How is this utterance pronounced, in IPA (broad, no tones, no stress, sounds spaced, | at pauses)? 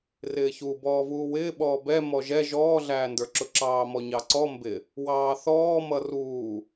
r ɪː ç u b ɔː v uː w ɪː ɓ ɔː b ɛ m ɔ ʒ ɛ ʒ ɔː ɮ æː n d ə˞ ǁ ʊ ǁ ɑː m ɔ ɲ ɑ ǀ ɔ m b ɪ | w ɑː θ ɔː m ʌ r uː